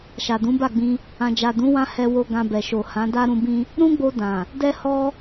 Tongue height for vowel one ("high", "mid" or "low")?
low